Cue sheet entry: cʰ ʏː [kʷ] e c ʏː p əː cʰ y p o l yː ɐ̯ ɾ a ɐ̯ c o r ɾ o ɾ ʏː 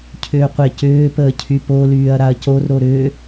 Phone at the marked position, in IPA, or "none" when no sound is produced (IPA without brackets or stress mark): qʷ